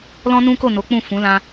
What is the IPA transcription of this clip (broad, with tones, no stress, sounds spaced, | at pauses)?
l ɔ̃˦ n ũ˦ k o˦˨ n o˨˦ k͡p ũ˦˨ f ũ˨˦ l ã˧